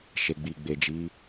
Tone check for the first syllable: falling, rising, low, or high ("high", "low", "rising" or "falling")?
low